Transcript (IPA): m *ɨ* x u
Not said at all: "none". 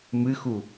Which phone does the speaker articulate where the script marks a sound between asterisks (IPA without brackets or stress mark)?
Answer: ɨ